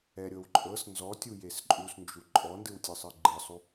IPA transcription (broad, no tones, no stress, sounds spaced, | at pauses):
ɛ ɾʲ ɤ w ǃʼ ɤ s n z ɔ tʲ u j e s ǃʼ u s n d͡ʒ u ǃʼ ɔ n d ɯ w tʲ ɯ sˤ ɯ ɡ͡ǃ ɯ sˤ u